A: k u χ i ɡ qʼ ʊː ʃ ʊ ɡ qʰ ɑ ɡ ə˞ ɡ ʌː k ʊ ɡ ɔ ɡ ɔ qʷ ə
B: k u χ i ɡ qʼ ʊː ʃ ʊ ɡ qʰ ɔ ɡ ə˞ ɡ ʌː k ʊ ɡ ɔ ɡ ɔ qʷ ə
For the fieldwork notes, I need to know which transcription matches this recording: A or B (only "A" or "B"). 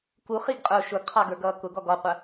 A